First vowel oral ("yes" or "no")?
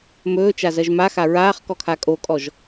yes